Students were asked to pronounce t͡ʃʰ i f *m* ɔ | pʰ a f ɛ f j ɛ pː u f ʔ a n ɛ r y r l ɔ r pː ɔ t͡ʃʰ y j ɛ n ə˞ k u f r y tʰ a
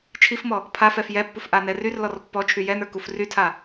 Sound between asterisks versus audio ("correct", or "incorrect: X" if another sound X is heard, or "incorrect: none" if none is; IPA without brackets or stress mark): correct